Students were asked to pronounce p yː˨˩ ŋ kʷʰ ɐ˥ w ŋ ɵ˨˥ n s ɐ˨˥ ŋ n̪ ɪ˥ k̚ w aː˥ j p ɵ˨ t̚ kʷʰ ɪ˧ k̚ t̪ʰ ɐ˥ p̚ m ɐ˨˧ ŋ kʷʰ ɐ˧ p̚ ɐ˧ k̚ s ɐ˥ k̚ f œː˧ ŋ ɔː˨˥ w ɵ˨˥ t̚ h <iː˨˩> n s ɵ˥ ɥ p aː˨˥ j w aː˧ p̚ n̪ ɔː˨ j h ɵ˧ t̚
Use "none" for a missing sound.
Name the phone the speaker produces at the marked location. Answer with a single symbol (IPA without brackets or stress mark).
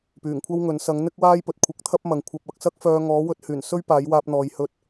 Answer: yː˨˩